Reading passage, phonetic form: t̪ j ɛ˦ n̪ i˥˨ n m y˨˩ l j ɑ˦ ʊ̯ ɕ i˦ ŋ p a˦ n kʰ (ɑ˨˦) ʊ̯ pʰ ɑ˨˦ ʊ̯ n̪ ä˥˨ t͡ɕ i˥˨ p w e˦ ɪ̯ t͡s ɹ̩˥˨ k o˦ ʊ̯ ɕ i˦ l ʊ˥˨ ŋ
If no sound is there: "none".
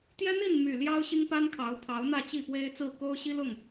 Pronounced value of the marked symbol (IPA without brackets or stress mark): ɑ˨˦